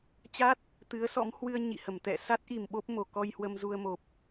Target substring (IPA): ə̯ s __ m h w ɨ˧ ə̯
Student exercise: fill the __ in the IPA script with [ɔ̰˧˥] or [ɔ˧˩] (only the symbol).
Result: ɔ̰˧˥